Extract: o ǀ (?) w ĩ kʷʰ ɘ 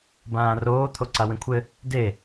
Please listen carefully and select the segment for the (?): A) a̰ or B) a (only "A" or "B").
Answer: B